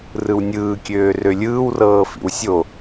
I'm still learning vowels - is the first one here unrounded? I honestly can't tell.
yes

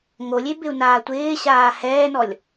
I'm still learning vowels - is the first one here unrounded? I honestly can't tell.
no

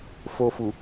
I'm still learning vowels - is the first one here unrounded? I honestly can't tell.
no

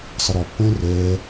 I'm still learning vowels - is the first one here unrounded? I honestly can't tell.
yes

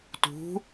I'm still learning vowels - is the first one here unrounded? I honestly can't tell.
no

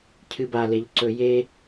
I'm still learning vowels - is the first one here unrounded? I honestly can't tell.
yes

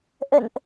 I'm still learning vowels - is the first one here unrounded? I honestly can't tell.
yes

